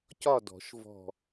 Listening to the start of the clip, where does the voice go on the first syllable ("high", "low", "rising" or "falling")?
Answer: falling